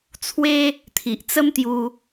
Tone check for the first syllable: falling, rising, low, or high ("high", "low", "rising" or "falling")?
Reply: high